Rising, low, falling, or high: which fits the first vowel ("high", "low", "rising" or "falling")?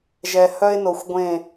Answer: low